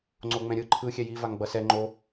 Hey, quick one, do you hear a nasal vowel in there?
yes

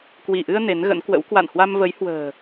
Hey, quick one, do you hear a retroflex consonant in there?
no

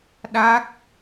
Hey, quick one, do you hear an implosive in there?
yes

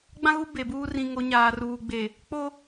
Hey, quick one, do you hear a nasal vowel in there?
yes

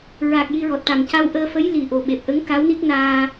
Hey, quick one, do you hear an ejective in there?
no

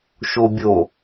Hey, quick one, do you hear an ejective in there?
no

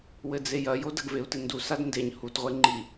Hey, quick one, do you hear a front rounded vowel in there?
no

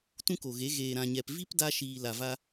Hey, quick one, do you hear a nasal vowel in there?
yes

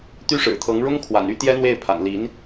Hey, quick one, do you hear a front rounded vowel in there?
yes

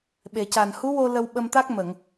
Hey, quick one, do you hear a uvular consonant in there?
no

